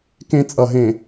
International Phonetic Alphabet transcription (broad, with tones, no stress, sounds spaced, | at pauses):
k ẽ˦ t͡sʼ ʌ˨ ɦ ẽ˨